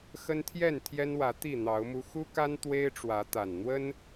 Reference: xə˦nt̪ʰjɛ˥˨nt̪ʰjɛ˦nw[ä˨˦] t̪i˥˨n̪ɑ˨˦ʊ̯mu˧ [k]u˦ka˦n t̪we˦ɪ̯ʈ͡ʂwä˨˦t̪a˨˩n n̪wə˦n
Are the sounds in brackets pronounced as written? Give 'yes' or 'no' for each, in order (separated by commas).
yes, no